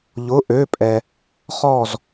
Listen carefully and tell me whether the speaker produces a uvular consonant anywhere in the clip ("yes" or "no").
yes